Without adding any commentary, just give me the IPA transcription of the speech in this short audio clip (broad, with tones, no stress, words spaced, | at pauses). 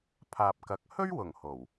pʰaː˨p̚kɐ˨˥k̚ hɵ˥ɥwʊ˨˩ŋ ho˨˩w